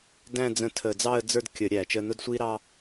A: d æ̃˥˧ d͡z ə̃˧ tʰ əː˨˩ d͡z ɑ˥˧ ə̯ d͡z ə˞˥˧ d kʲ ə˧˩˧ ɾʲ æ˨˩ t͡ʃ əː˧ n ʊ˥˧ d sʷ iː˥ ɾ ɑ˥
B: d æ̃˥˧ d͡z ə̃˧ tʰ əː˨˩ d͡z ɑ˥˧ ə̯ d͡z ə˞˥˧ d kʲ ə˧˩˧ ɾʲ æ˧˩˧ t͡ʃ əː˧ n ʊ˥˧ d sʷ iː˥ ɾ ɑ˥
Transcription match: A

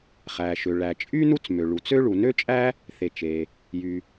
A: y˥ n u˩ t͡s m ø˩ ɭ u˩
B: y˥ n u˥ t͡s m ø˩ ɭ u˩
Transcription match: B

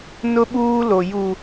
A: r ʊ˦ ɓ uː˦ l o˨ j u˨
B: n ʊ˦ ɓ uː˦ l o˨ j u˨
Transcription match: B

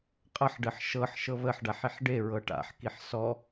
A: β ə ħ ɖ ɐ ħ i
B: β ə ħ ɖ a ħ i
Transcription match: B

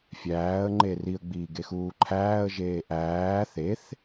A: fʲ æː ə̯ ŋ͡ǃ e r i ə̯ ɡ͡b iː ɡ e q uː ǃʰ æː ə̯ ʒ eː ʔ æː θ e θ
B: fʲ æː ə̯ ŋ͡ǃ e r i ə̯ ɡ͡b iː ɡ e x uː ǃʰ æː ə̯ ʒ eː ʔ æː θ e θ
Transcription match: B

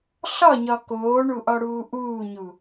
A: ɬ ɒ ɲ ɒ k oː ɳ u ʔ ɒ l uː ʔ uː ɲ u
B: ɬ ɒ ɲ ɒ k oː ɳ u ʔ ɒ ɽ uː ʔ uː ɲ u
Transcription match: B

